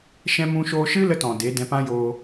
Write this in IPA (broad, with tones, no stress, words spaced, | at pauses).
ʃɛ̃˧mũ˧ʃoː˧ʃɨ˦ lə˦tɔ̃˨de˨˦ dɛ̃˧pã˦joː˧